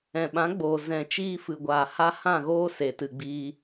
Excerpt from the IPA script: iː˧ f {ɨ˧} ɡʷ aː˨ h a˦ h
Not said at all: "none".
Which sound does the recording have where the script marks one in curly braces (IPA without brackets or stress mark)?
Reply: ɨ˨